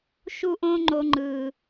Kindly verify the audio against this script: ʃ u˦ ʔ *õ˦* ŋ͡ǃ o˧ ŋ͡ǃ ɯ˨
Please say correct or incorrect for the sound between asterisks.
correct